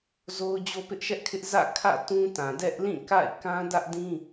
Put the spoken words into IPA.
zo˦ʊ̯ d͡ʑo˦pɪ˦ʔʃɛ˦ʔkʰɪ˦ʔ zä̰˦˨kʰä̰˦˨tũ˦ tã˨dɛ˦ʔlĩ˦˨ka̰˦˨ɪ̯ kã˦dä˦ʔdĩ˦

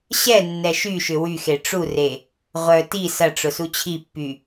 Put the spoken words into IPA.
ɕɛ nːɛʃyʃʏ wyxe ʈ͡ʂure | ʁʷœ ti sɐʈ͡ʂʊ sut͡ɕʰipːy

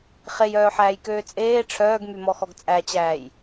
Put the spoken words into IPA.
χejœːħæːjkøː t͡sʼeː ʈ͡ʂʰœːɡmymɔxɔɡ t͡sʼæt͡ɕæːj

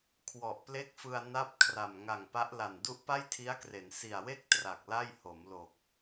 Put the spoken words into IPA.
kʰwɔ˨˩ʔple˥˩k̚fɯ˧a̯ na˥˩p̚ kʰra˨˩m ŋa˨˩ŋpa˦˥ʔla˨˩n du˦˥ʔpa˥˩jtʰi˦˥a̯kre˩˦n si˨˩a̯we˥˩k̚ tra˨˩k̚la˥˩j ho˩˦mlo˨˩k̚

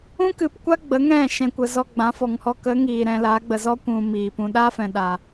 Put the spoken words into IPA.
ũ˦kɨ˨pkʷa˦ ɡ͡bə˨˦ŋɛ̃˦˨ ʃɛ̃˨kʷə˨ zɔ˧ɡ͡bã˨˦fɔ˨ŋhɔ˦ kə˨˦ ŋiː˨ɾɛ̃˧laː˨˦ɡ͡bə˨ zɔ˦kʷũ˨ miː˨pũ˧ ɗa˦fɛ̃˨ɗa˨

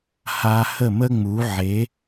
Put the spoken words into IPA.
ha˧ hə˥˩mə˥ŋ͡mu˩˥ ʕe˩˥

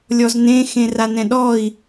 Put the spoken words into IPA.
lʲɔznẽ xẽranɛ̃ɗɔi̯

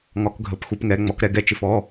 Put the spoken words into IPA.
ŋɒ˧˥kɡʱə˧˥pxu˧˥pŋɛ˧˥ ŋ͡mɔ˧˥kɾɛ˧˥ ɡɛ˧˥t͡ʃɪ˧˥fɔ˧˥˧

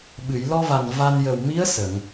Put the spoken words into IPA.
ɓɨ˨˩˨jlɔ˧va˨˩n va˧n jə˨˩wmi˧˥ə̯ sə˨˩˨ŋ

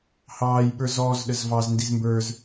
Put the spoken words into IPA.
hɑːj ɓə˞zɔːz ɗəzvɑz ndizmbə˞z

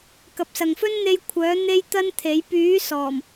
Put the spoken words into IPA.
kɐ˨p̚sɐ˨ŋ fɵ˥nn̪e˧j kʷʰœː˨˥ n̪e˥jt̪ɐ˥nt̪ʰe˨˥j pyː˨˥ sɔː˨˩m

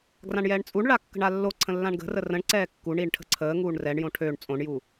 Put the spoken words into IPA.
ɡrãɳjɛːɳt͡sʼuɳɭa kːə̤ɳalːoǀʰə̃ lːãɳɡə̤rə rə̃ɳǀɛː kːuɳiɳ ʈʰə̤ǀʰəːŋuːɳ rɛɳjõ ʈʰøɳ t͡sʼõɳju

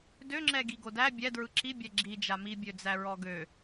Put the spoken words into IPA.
døŋ͡ǁɛɡi ɡodæ bʲɛdɹɯ ǁibʲɛ ɡ͡ǁi d͡ʒamibʲø d͡zæɹɔɡø

